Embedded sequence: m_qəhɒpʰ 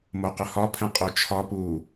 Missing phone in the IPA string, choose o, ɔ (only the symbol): o